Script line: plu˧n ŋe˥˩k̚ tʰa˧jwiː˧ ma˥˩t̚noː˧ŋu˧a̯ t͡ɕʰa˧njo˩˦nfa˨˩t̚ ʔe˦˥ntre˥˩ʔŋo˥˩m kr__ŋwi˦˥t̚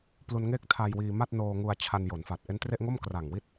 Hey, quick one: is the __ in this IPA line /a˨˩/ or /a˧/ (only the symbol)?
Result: a˨˩